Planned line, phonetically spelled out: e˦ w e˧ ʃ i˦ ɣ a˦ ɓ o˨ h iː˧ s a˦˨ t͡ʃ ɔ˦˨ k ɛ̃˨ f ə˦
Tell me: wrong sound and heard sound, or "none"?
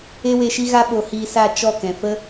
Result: none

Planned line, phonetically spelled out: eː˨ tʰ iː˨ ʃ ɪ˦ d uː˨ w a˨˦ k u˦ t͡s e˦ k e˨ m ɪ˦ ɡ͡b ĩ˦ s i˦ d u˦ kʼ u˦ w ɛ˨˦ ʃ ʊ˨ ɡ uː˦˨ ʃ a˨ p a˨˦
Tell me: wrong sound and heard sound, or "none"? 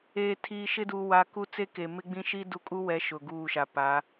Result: s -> ʃ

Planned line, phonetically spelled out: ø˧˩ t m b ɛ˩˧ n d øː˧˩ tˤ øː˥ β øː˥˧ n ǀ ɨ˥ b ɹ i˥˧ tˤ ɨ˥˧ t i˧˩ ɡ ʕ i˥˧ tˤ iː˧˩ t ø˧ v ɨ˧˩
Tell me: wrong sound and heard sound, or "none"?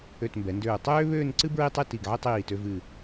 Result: none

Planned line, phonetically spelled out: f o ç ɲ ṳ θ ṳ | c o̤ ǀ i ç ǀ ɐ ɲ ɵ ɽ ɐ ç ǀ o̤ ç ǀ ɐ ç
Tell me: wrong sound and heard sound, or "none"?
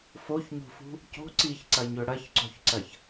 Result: θ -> f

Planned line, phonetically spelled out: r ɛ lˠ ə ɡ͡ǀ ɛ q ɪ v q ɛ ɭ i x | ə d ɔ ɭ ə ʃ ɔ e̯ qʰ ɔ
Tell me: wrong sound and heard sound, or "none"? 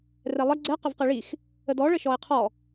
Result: none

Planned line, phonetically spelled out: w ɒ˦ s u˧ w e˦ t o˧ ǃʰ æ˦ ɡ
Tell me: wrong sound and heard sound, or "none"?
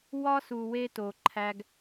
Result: none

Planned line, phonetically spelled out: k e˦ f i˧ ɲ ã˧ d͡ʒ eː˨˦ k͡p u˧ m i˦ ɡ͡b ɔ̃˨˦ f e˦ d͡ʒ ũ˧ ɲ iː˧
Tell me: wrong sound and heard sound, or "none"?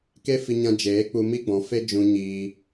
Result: none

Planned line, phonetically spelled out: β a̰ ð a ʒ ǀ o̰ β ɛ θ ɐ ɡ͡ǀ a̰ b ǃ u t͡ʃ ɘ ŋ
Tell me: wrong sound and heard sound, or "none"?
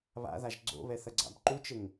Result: ǀ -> ɡ͡ǀ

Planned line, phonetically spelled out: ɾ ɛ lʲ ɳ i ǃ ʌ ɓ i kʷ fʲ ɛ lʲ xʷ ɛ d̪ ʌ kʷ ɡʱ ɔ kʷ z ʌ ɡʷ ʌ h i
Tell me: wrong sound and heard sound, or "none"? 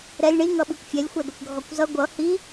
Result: ǃ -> ŋ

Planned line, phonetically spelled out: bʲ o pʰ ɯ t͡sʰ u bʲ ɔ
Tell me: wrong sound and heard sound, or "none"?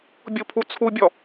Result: ɯ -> u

